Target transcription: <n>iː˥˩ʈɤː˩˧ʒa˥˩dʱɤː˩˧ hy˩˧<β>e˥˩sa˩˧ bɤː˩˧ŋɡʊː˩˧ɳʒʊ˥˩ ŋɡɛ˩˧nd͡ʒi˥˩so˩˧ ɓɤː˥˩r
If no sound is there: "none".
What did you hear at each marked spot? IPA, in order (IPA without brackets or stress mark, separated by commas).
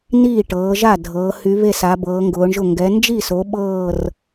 n, β